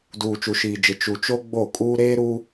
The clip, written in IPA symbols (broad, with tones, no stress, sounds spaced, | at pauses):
d uː˨ t͡ʃ u˨ ʃ iː˨ d͡ʒ ɪ˨ t͡ʃ u˨ t͡ʃ o˦ ɡ͡b o˦˨ kʼ uː˦ ɾ eː˦ ɾ u˦